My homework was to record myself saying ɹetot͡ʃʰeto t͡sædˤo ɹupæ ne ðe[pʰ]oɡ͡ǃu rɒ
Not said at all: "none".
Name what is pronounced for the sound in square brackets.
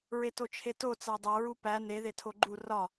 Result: tʰ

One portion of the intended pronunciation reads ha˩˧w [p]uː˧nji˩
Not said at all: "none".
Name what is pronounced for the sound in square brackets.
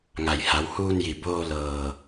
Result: h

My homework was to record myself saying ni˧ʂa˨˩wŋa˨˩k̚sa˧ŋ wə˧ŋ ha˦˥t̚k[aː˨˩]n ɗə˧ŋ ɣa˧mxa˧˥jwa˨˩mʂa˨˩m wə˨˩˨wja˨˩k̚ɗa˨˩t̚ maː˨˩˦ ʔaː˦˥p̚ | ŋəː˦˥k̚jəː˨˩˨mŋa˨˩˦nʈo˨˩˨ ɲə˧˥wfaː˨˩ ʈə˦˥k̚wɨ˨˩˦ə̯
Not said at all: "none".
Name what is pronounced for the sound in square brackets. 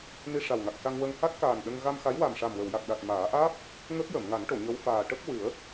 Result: aː˨˩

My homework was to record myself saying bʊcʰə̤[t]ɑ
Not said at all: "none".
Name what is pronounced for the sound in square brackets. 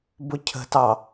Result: t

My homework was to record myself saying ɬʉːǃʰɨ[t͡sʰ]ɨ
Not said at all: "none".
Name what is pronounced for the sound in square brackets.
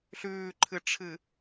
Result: ʈ͡ʂʰ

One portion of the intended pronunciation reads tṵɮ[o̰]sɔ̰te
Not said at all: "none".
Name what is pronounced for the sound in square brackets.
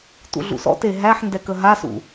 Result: ṵ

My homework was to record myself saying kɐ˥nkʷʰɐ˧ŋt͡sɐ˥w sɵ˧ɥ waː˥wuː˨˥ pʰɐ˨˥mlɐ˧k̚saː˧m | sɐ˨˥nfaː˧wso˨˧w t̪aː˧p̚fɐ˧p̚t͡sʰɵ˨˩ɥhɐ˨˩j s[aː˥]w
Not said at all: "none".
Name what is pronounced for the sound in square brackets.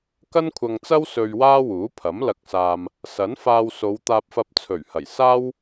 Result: aː˥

